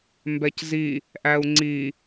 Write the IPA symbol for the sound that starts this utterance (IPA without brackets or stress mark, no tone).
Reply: m